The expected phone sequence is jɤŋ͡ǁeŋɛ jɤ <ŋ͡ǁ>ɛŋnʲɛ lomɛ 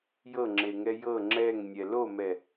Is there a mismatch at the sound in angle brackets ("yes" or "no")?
no